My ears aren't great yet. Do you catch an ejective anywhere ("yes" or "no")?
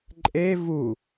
yes